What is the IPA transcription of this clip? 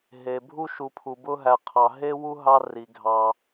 ɦ e˩ bʱ u˦ ʃ u˨ pʰ u˩ b ʊ˦ ɦ æ˨ qʰ ɑ˩ ɦ e˥ w u˥ ɦ ɑ˦ r i˩ ɡʱ ɑ˨

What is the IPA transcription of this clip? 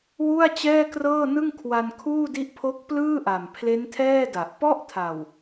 w u˥˩ a̯ t͡ɕ ɛː˥˩ k r ɤː˥˩ n ɯ˥˩ ŋ kʰ w a˧ n kʰ uː˥˩ d i˦˥ ʔ pʰ o˦˥ k̚ p l ɯː˥˩ ʔ a˨˩ m pʰ l e˦˥ n tʰ ɛː˥˩ d a˨˩ ʔ p ɔ˥˩ ʔ tʰ a˨˩ w

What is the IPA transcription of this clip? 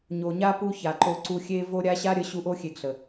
ɲ o˨ ɲ a˦ p u˦ ç a˨ ǃ o˧ ǀ u˧ xʲ e˦ v o˦ ɾʲ a˦ ɕ a˦ ɾʲ ə˨˦ ɕ u˧ ʔ o˦ xʲ e˧ ɡ ɬ ə˨

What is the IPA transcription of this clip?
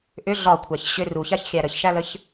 ʔ ʏ ɮ ɒ kʷʰ æ ç ɕ ʏ r u ç a ç xʲ æ ɾ ə ç ʃ æ l ə ç

